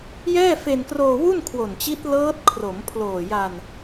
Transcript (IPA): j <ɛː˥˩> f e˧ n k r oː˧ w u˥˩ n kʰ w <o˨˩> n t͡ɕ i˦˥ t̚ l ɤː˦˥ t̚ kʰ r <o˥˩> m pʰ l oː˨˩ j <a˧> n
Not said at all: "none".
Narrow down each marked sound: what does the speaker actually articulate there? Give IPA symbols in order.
ɛː˥˩, o˨˩, o˩˦, a˧

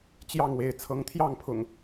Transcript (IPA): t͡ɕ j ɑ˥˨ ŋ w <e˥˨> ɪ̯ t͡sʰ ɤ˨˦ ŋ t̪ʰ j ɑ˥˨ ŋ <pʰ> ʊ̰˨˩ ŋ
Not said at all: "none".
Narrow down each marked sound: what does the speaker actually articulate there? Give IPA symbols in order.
e˥˨, pʰ

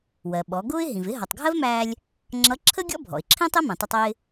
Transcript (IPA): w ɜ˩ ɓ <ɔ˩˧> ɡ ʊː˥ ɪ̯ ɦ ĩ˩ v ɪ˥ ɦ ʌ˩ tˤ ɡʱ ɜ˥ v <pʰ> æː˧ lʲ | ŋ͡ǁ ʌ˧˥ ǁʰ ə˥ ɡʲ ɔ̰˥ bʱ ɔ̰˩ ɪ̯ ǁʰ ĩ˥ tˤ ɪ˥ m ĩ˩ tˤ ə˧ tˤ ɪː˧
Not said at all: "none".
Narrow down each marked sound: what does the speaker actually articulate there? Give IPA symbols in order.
ɔ˩˧, m

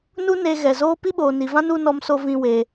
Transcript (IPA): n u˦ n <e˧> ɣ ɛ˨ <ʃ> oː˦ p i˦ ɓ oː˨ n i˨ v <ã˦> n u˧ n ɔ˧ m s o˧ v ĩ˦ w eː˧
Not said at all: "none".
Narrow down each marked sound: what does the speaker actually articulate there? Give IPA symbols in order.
e˧, z, ã˦

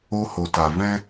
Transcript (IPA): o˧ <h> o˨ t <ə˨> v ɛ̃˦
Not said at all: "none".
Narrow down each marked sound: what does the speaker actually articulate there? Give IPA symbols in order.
h, a˨

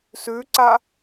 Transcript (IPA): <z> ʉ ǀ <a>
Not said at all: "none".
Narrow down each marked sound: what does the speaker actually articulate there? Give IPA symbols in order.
s, a

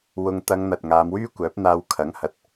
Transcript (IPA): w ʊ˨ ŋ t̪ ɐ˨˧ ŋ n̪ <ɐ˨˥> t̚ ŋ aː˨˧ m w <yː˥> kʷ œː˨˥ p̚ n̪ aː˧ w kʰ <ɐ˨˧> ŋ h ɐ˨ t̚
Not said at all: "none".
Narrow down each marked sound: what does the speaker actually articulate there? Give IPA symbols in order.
ɐ˨, yː˥, ɐ˨˥

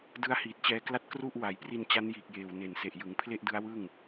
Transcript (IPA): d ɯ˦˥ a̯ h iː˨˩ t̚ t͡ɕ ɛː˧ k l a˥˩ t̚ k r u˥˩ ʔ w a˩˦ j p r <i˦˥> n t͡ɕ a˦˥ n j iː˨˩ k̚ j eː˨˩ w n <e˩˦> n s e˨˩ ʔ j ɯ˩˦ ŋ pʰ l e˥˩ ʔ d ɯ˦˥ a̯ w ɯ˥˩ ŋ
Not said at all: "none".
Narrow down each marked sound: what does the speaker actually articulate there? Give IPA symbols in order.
i˧, e˨˩

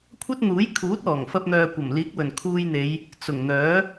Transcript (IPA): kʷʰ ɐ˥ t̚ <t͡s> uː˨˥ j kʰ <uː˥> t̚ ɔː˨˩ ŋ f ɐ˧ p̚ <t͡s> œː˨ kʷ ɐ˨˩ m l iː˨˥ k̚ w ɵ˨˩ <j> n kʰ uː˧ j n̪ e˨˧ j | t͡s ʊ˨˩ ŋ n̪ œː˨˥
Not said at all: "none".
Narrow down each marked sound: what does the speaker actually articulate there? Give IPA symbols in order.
n̪, uː˨˥, n̪, none

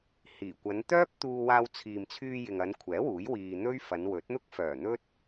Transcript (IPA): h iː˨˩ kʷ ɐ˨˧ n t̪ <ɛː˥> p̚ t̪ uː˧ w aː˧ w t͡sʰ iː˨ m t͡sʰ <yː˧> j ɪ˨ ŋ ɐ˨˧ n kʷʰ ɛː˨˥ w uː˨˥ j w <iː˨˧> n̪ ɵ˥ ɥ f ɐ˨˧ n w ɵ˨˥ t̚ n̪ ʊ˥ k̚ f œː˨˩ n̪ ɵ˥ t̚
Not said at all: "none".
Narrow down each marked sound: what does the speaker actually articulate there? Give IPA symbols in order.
œː˥, yː˧, iː˨

